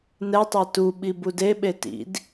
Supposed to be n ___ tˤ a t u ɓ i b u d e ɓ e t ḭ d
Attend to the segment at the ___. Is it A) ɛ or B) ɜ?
A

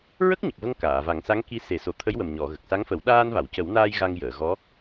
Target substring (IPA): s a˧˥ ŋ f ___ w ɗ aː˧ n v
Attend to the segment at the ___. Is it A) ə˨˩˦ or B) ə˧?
A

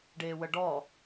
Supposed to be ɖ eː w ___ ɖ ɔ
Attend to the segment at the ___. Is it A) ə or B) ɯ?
A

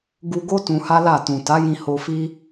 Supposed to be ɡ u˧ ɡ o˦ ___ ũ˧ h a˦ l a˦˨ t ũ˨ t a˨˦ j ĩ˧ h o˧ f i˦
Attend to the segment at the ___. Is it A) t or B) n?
A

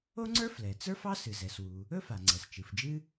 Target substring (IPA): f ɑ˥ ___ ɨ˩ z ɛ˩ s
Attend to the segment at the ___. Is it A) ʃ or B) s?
B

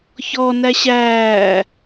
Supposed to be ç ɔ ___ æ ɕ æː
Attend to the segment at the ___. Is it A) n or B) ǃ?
A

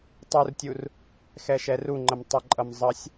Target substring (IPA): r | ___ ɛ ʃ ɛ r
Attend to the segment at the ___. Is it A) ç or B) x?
B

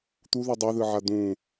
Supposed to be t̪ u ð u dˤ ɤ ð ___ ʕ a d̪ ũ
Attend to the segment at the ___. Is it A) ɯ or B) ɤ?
A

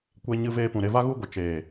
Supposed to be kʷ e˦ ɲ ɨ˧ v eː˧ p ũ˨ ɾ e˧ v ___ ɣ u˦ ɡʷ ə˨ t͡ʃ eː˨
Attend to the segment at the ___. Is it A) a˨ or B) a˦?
B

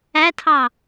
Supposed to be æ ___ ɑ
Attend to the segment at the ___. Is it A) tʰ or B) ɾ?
A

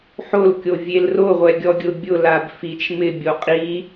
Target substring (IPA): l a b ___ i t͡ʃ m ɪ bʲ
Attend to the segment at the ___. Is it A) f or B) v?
A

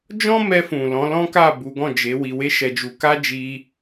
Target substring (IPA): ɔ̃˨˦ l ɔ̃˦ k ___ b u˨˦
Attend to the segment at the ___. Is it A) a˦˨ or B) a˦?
A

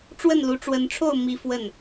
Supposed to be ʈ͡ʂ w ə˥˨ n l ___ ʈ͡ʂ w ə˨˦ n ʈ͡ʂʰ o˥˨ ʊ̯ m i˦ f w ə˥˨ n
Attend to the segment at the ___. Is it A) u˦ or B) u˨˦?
B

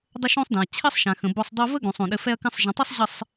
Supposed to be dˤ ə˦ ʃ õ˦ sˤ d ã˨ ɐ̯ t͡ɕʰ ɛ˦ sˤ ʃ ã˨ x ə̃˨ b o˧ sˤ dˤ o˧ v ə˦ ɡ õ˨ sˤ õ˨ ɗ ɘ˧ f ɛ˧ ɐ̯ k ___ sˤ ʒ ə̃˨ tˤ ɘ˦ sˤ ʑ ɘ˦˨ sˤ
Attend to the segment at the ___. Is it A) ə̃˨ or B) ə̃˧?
B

